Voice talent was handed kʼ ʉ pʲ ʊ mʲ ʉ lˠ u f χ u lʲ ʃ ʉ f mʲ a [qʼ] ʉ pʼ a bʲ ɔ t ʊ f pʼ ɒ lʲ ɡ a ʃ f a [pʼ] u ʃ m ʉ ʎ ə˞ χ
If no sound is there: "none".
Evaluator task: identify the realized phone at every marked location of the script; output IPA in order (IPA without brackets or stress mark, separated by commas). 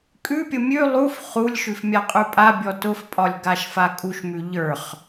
qʼ, kʼ